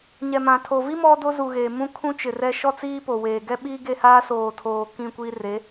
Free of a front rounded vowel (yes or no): yes